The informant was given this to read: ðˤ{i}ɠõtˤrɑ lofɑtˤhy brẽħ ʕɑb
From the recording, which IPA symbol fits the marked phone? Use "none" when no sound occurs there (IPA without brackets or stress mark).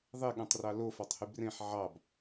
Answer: e